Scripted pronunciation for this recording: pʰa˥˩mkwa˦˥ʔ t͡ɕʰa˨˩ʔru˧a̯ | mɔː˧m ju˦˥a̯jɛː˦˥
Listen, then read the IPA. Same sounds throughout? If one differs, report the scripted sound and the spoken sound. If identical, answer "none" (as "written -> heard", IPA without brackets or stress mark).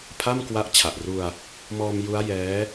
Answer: none